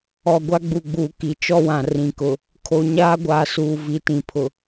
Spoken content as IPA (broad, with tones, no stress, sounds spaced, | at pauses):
ɔ˨ ɡʷ a˦ ɡ͡b u˨ ɡ͡b uː˨ k i˨ t͡ʃ ɔ˦ w ã˨ r ĩ˨ k ʊ˨ | kʰ o˨ ɲ aː˦ ɡʷ aː˨ s uː˨ v i˨ t ĩ˨ pʰ ʊ˨